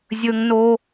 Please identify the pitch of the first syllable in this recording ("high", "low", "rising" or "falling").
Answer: high